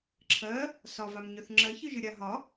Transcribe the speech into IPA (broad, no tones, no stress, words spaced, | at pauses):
ǁʰɜ | sɒvamɲœθ ŋ͡ǁɜçɨʒɨ ɾʲaɦɒ